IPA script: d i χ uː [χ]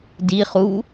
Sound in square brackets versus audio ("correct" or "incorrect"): incorrect